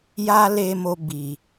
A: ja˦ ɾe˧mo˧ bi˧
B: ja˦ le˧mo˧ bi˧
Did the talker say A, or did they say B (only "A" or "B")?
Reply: B